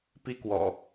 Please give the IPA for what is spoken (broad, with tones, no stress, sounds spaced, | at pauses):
p i˦ k w ɔ̰˨˩